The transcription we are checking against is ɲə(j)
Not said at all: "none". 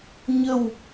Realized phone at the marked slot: w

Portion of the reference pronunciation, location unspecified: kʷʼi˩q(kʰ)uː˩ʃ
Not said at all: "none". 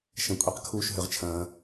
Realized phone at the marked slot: kʰ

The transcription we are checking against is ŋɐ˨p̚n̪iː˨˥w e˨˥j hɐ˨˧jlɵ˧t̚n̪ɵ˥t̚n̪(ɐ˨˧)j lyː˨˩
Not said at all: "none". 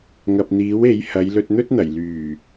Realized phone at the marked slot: ɐ˨˩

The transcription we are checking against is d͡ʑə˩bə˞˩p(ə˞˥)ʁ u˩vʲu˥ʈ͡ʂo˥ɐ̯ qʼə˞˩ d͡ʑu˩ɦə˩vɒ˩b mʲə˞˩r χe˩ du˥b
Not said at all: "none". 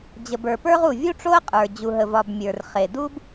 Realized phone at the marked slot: ə˞˥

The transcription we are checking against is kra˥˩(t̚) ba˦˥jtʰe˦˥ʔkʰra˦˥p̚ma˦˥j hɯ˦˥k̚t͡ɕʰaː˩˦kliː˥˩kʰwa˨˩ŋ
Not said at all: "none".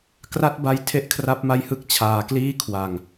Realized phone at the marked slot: t̚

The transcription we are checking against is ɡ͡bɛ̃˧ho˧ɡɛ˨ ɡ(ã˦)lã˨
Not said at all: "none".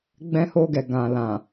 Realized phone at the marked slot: ã˨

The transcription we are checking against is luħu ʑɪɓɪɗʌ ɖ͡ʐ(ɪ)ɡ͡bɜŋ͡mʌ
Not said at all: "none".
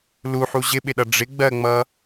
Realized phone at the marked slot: ɪ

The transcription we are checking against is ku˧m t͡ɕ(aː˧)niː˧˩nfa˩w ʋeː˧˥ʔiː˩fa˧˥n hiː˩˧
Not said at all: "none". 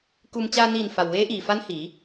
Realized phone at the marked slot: aː˧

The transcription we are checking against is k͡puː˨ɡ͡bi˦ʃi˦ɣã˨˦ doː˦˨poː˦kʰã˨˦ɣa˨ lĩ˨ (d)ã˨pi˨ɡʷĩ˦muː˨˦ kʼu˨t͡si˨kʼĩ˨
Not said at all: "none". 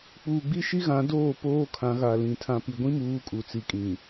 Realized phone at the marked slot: tʰ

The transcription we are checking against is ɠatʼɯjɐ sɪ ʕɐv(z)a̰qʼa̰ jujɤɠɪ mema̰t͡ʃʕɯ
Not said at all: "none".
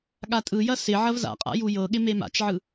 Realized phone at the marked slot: z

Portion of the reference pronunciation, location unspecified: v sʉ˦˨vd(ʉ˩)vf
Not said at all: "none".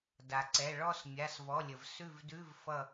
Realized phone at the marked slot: ʉ˧˥˧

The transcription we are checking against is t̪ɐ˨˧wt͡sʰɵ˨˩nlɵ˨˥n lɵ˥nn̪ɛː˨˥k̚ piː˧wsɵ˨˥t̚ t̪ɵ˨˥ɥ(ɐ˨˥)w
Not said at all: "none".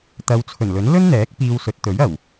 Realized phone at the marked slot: ɐ˨˩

